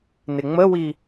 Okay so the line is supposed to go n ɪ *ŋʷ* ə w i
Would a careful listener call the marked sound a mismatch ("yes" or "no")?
yes